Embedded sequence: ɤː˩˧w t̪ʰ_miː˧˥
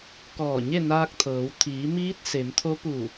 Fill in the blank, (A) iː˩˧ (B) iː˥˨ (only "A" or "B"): A